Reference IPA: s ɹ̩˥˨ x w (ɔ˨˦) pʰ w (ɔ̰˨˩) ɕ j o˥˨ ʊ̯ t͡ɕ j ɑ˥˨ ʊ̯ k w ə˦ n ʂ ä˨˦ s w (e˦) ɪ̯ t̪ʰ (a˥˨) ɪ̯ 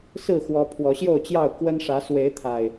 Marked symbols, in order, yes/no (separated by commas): yes, no, no, no